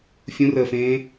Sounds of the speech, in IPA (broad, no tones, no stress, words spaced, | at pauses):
fʲũrəːfẽː